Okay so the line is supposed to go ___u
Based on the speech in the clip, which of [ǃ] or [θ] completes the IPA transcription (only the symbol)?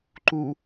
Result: ǃ